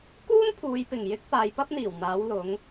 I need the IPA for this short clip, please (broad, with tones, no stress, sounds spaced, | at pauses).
k uː˥ n pʰ uː˨˧ j p ɪ˨˩ ŋ j ɪ˥ k̚ p aː˨˧ j p ɐ˥ p̚ n̪ iː˨˩ w n̪ aː˨˧ w l ʊ˨˧ ŋ